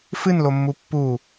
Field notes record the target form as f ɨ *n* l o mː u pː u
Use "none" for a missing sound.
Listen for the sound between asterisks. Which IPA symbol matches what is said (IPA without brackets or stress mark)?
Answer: n